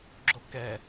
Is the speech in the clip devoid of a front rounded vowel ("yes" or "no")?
yes